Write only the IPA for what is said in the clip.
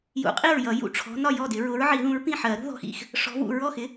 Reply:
j ṵ˨˩˦ qʼ i˥˩ ɹ j ʌ˨˩˦ j ṵ˥˩ ʈ͡ʂʰ ɔ̤˨˦ n ɒ˥˩ j ɔ˥˩ d ɪ˨˩˦ ɹ ʊ˨˦ ɹ ʕ i˨˩˦ ð ũ˨˦ ɹ p ĩ˥˩ ħ ɜ˨˩˦ ɾ ṳ˨˦ ð ɔ̤˨˦ x ḭ˥˩ x | ʂ ɔ̤˨˦ v ṵ˥˩ ɹ ɔ˥˩ x ɪ˨˦

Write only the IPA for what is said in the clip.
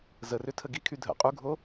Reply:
z ə r ʏ tʰ ə ɡ i kʰ y dʱ ə̰ qʼ u ɡʱ o

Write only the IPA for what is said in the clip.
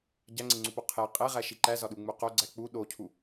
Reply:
ɟ æ ŋ͡ǀ e ŋ͡ǀ u p o qʰ e qʼ e ʁ æ ʃ i ǃ æ z ɒ ɗ u ŋ͡m u q o ɡ͡ǀ æ k͡p u ɗ o cʰ u

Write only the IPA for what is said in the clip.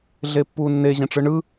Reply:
ɮ e pː uː nː e ʑ ẽ ʈ͡ʂ ɯ ɳ ɯ

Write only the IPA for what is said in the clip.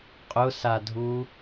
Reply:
qʼ ʊ s a dʱ u

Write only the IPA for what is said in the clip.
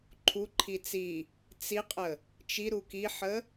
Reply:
ǃʰ u ǃʰ i t͡s i | t͡s i qʼ ə | t͡ʃ i ɾ u k i ħ ə

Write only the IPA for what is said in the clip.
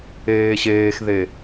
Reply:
eː ɕ eː x ð e

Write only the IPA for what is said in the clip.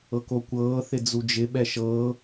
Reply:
ɤ k o kʷ ɤː θ ɪ d͡z u d͡ʒ ɪ ɓ ɛ ʃ ɤː

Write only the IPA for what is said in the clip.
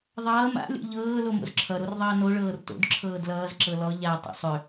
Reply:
ðˤ ʌː m a̰ lʲ o̰ ʎ ɤː l o m o̰ z ǁʰ ʌ ɾ o r ðˤ ʌː n o ɭ ɤː r t o̰ d ǁʰ ɤː d l ʌː z ǁ ɤ l ɔ ʎ a tˤ o̰ sˤ ʏ

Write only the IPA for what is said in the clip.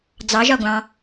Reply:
d͡z ɑ ʒ ɒ ɡʷ ɑ̃

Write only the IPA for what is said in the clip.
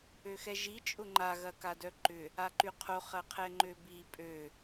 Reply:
ø x ɛ ʒ i t͡ʃʼ ʊ ŋ͡ǃ a ɣ ɐ k a d œ ǃ ʏ | a ǃ y qʰ o χ ɐ qʰ ɛ ŋ͡ǃ ø b i pʼ ø

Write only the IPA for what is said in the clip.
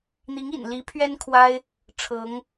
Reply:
n̪ i˧˥ ŋ ḭ˨˩ n l i˧˥ pʰ ɥ ɛ˥ n kʰ w a˥ ɪ̯ | ʈ͡ʂʰ ɤ˧˥ ŋ

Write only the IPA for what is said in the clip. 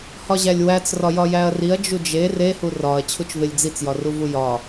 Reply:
h ɒ ʑ æ lʲ w æ t͡s r ɒ j ɒ j æ ɐ̯ r i ɐ̯ d͡ʒ u d͡ʒ e r e h u r ɒ ɐ̯ t͡ɕʰ u t͡ʃ v e lʲ d͡z i t͡s j ɒ r u v u j ɒ

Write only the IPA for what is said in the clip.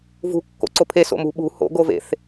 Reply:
v ṳ kː o̰ ǀ o pʰ e s o̰ m ṳ ɓ ṳ h o̰ ɡ o v ḛ θ

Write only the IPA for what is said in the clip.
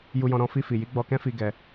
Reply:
j u˧ j ɔ̃˧ ɾ ɔ̃˧ f i˧ f i˨ j i˨˦ ɡ͡b ɔ˧ k ɛ̃˦ f i˧ ɡ ɛ˧

